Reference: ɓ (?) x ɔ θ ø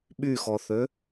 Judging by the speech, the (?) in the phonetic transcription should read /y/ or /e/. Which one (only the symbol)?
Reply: y